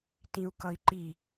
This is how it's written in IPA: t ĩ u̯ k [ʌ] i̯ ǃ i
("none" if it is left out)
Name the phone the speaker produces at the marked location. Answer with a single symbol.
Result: ʌ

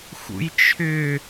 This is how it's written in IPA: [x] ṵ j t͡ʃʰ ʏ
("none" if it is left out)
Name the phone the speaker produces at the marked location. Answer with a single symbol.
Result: x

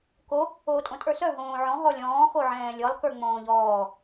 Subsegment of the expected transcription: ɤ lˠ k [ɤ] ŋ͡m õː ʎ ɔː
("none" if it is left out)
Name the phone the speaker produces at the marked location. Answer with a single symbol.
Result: ə˞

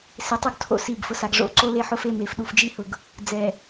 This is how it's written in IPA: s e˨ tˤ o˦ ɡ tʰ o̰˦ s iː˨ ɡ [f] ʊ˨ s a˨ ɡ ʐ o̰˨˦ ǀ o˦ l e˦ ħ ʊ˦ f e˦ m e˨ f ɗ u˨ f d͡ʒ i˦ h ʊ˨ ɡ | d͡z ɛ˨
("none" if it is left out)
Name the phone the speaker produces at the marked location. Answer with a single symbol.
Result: f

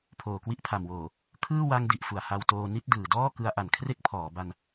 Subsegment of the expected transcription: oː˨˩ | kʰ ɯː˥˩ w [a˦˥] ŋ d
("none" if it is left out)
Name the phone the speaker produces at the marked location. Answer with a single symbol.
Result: a˧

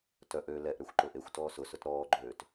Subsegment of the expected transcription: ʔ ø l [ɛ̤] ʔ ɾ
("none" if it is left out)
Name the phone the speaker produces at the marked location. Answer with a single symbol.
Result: ɛ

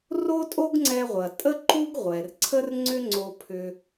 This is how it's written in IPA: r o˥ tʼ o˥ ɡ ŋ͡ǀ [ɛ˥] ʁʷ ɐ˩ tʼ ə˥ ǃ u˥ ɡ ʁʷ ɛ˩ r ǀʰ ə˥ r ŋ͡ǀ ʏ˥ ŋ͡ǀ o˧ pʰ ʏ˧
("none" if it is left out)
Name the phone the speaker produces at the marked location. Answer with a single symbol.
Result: ɛ˧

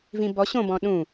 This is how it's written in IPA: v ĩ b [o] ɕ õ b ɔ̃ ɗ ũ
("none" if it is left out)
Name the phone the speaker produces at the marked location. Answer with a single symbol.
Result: ɔ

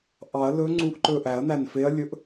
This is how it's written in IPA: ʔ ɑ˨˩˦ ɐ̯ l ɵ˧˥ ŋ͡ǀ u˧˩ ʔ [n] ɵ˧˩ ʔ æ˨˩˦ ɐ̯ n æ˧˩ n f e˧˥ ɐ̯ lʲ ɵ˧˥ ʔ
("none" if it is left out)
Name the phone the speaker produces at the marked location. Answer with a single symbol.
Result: ǃ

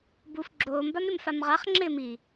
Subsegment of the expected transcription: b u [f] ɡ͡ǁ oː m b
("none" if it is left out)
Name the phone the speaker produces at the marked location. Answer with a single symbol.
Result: f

